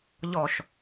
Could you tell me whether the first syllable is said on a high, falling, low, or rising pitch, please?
low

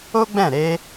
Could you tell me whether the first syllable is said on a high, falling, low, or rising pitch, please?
high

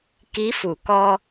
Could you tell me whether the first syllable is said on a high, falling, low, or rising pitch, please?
rising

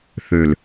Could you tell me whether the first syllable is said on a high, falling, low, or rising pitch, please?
low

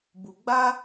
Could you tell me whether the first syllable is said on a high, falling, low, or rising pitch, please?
low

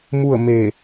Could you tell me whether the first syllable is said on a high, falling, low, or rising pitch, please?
falling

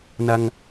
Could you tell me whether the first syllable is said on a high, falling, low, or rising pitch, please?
high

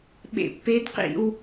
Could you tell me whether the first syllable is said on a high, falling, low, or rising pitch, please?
low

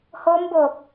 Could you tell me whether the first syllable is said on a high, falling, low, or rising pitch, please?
rising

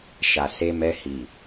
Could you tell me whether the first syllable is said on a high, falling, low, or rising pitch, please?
low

